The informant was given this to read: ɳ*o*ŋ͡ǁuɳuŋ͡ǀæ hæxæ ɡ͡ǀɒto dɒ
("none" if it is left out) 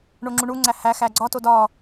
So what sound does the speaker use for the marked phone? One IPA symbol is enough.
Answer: o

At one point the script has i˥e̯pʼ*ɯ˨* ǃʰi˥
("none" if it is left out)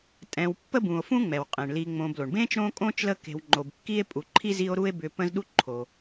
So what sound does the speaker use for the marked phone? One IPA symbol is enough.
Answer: u˨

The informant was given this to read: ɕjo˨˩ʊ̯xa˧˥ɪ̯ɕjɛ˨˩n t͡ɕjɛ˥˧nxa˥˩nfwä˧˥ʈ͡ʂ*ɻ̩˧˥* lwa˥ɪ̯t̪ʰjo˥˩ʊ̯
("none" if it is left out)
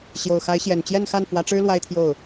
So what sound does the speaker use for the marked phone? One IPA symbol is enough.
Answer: ɻ̩˥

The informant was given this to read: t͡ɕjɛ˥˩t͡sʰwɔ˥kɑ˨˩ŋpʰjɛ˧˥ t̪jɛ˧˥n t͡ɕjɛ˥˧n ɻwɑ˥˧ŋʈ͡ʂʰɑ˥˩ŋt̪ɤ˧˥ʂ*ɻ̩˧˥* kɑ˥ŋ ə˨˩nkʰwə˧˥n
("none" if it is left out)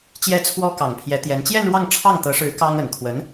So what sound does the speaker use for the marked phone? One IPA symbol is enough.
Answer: ɻ̩˧˥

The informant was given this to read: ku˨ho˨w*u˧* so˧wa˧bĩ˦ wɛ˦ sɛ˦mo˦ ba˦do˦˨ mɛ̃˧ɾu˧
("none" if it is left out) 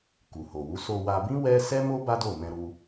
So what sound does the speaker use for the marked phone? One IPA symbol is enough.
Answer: u˨˦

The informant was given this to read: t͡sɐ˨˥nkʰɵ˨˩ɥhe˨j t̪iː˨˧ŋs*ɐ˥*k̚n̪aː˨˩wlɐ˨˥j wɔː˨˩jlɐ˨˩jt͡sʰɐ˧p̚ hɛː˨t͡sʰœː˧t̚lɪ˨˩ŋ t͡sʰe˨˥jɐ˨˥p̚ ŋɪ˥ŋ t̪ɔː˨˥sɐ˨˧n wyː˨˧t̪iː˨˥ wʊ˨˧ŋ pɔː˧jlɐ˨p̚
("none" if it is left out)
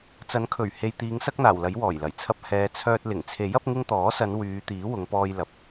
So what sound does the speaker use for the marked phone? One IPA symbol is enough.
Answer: ɐ˥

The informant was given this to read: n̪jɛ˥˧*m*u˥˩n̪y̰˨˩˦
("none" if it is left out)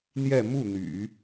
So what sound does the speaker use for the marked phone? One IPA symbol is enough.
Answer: m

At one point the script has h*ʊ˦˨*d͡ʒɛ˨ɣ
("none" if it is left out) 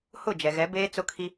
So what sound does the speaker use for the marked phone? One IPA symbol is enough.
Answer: ʊ˦˨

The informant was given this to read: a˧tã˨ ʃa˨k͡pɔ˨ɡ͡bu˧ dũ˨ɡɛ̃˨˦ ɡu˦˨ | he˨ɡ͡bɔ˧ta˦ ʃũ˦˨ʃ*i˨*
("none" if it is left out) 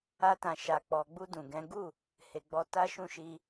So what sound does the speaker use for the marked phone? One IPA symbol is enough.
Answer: i˧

